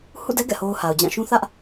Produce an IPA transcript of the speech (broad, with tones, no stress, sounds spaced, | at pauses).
h ṵ˦˨ d ɛ˦ ɡ ɛ̰˦˨ h o˦ ʊ̯ h a˨ ʊ̯ d͡ʑ ã˦˨ ʃ ũ˦ θ ä˦ ʔ